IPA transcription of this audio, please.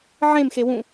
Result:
ʕ ẽ m x e w ũ

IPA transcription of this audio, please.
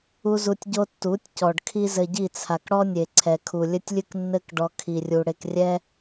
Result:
u˦ z u˧ tʲ ɟ o˦ tː u˨˦ tʲ c ɔ˨ ɖ kʰ i˦ z ɘ˧ ɟ i˦˨ t͡sʰ a˨ k ɽ ɔ˦ nʲ e˨ ǀʰ ɛ˨ kʰ u˨ lʲ ɘ˦ tʲ lʲ ɨ˦ k nː ɘ˦ k ɖ ɔ˦ kʰ i˧ rʲ u˧ ɽ e˧ k rʲ ɛ˦

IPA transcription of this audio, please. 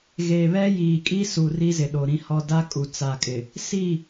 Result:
ɣ e˨ β ɛ˦ j iː˨ kʼ i˦ s u˨ r i˦ z ɪ˨ ɗ o˨ ɾ ĩ˦ h ɔ˦ d a˦ kʼ u˨ t͡s a˨ kʼ ɪ˨ | s i˦˨

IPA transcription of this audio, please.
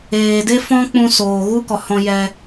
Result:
eː˨ d e˦ f ɔ̃˦ k͡p ũ˧ s oː˨ ɣ u˦ k ɔ˨ h ɔ̃˧ j ɛ˧

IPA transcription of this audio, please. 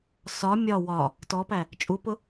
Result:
s ɒ mʲ ɒ w ɒ | t ɔ p æ | t͡ʃʼ u p ʊ

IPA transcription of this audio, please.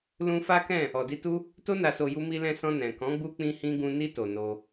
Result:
l ũ˧ f a˦ k ɛ̃˦˨ | ɔ˨ d i˧ t u˦ | t o˧ n a˨ s o˨ j u˧ m i˧ l ɛ̃˧ s ɔ̃˧ n ɛ̃˨ k ɔ̃˨˦ ɡ͡b u˧ k͡p ĩ˧ h ĩ˧ ɡ ũ˧ n i˧ t o˨ n o˧

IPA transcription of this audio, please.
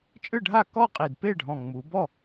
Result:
t͡ʃʼ ɯ˥˩ ɖʱ a˥˩ k ɔ˥˩ qʼ i˨˩ d p e˥˩ ɖʱ ɔ̃˨˩ ŋ͡m u˩˧ b ɔ˥˩

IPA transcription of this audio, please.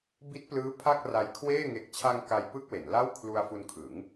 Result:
b i˦˥ t̚ p l ɯː˦˥ pʰ a˥˩ k̚ r a˧ j kʰ w eː˥˩ ŋ e˨˩ k̚ t͡ɕʰ a˧ ŋ k a˧ j p ɯ˥˩ k̚ w e˩˦ n l a˥˩ w kʰ l u˧ a̯ f u˧ n kʰ ɯ˩˦ ŋ

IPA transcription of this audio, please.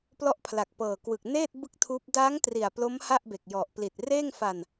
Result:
p l ɔ˦˥ ʔ pʰ l a˨˩ k̚ p ɤː˨˩ k w ɯ˨˩ k̚ n eː˥˩ t̚ b ɯ˦˥ k̚ tʰ uː˦˥ p̚ d a˦˥ ŋ t r i˨˩ a̯ p l o˦˥ m h a˥˩ ʔ b e˨˩ k̚ j ɔ˨˩ ʔ p l i˨˩ t̚ r eː˥˩ ŋ f a˧ n

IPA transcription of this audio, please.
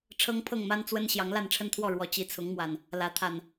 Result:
ʈ͡ʂʰ ɤ˦ ŋ pʰ ɤ˥˨ ŋ m a˦ n t͡s w ə˦ n ɕ j ɑ˨˦ ŋ l a˥˨ n ʈ͡ʂʰ ə˦ n t̪ʰ w ɔ˥˨ ɻ w ɔ˨˦ t͡ɕ i˨˦ t͡sʰ ʊ˨˦ ŋ m w a˨˩ n | l ä˨˦ t̪ʰ a˨˩ n

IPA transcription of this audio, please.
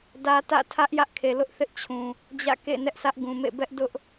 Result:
d ä˦ t ä̰˦˨ tʰ ä˦ ʔ j ä˦ ʔ kʰ e˨ l ʊ˦ ʔ θ ɪ˦ ʔ t͡ɕʰ ũ˨ | d͡ʑ ä̰˦˨ k ḛ˦˨ n ɛ˦ ʔ sʰ ä˦ ʔ ɡ ũ˨ m ḛ˦˨ b ɛ˦ ʔ d ʊ˦ ʔ

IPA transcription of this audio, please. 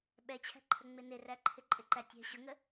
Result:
ɓ ɛ t͡ɕʰ æ̤ ǃʰ ə ŋ͡m ɪ n ɪ r æ ǃʰ ɪ ǃʼ ɪ ǃ æ tʲ ɛ̤ ɕ ʊ ŋ ə

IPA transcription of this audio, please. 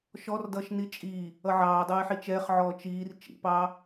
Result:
ʃ ɔ r d ʌː ʃ n i t͡ʃʼ iː | ʌ ʕ ɑː dˤ ʌː ɪ̯ ħ i t͡ʃ ɛː χ ʕ ɔː t͡ʃ iː r t͡ʃ ḭ p ɑː

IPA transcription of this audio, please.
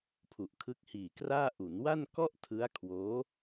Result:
pʰ u˨˩ ʔ kʰ ɯ˦˥ k̚ h iː˨˩ k r aː˥˩ ʔ u˩˦ n w a˥˩ n k ɔ˥˩ ʔ tʰ ɯ˦˥ a̯ kʰ w oː˦˥

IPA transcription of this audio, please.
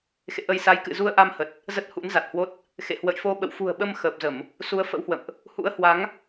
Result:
x ḛ˧˨ ʔ ə˧ j s a˨˦ j k ɨ̰˧˨ z u˧ ə̯ ʔ a˧ m h ə˨˩ t̚ | z ə˦˥ t̚ h ṵ˧˥ n z a˨˩ t̚ h w o˦˥ t̚ | x ḛ˧˨ h w ə̰˧˨ j f o˧ ɓ ə̰˧˨ w f ṳ˨˩ ə̯ ɓ ə˧ m x əː˨˩ p̚ z ə˧˩˨ m | s u˨˦ ə̯ f ə̰˧˥ w h w ə̰˧˨ m ʔ | h ṵ˧˥ ə̯ h w a˨˦ ŋ

